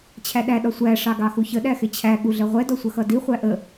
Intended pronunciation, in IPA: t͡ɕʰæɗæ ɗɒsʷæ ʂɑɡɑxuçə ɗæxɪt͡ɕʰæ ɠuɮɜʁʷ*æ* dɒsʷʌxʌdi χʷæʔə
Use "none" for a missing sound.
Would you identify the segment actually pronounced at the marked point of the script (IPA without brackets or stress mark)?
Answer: ɛ